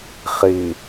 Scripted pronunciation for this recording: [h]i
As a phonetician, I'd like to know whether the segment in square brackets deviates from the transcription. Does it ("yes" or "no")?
yes